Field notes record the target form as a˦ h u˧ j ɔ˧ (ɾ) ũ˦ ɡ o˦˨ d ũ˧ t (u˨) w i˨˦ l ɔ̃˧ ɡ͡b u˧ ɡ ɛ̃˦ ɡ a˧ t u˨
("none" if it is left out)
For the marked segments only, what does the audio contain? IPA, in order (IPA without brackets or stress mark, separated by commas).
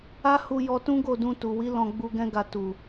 t, u˨